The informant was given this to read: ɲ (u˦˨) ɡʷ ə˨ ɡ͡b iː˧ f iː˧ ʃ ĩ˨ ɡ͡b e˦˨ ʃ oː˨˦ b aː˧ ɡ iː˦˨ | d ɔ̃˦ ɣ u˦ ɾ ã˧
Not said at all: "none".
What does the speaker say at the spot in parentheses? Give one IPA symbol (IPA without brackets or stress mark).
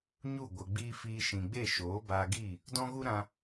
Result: u˦˨